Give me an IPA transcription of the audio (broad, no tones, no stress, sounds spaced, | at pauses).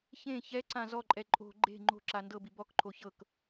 ç ẽ ç ɛ ǀ ã z ɔ ǃʼ ɛ ǃʼ o̤ ɡ͡ǃ e̤ ŋ͡ǃ o̤ ǁ a n d ɤ b i b ɔ k ǃʰ o ç ɤ k